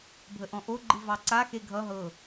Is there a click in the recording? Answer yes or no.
yes